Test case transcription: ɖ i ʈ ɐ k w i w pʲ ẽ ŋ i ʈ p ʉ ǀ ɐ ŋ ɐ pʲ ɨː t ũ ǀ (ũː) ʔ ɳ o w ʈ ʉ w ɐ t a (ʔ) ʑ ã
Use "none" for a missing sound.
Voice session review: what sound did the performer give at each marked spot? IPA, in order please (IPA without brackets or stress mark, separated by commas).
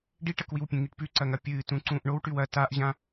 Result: ũː, ʔ